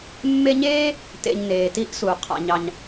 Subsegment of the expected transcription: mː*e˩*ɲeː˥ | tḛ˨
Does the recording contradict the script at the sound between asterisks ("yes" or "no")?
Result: yes